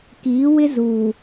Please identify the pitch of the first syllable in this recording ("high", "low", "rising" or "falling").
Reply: rising